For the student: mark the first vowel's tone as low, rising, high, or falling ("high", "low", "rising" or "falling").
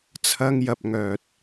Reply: high